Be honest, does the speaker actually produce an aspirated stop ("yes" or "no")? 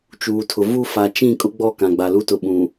yes